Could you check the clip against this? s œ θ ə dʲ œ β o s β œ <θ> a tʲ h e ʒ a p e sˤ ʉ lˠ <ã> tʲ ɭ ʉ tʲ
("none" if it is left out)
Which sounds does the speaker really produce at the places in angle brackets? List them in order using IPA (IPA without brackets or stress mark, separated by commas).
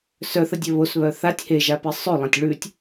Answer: θ, ã